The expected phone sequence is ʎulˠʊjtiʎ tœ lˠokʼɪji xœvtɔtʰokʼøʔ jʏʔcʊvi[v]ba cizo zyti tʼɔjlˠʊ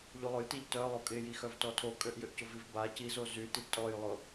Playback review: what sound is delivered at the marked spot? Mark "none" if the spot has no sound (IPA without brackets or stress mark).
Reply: v